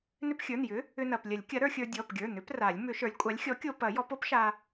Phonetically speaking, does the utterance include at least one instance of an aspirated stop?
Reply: no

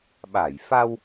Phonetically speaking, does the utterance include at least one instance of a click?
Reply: no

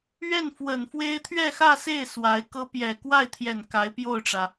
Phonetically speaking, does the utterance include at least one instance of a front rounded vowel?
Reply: no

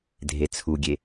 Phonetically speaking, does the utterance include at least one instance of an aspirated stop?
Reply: yes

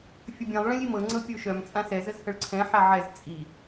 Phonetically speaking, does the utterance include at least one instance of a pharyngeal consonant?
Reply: yes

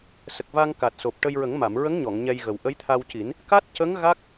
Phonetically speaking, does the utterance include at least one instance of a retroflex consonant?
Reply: yes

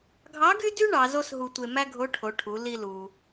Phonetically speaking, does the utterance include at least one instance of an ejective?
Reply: no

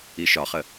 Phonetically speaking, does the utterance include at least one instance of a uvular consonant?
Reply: yes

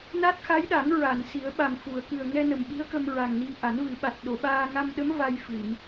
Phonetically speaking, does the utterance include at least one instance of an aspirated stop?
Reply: no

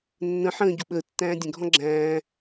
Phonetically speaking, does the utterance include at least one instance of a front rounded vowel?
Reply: no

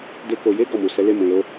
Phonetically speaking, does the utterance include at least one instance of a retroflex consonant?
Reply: no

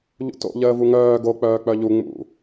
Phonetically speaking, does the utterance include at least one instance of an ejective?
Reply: no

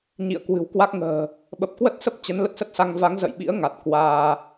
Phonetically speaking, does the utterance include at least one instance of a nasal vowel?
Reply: no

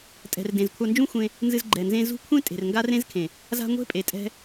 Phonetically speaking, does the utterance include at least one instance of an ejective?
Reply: yes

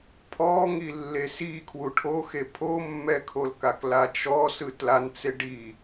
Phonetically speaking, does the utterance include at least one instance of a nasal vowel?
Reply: no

